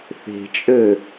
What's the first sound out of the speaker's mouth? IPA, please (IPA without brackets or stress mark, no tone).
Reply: θ